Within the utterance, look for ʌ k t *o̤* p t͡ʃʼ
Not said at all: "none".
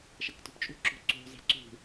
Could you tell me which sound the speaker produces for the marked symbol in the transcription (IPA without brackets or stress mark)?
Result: ṳ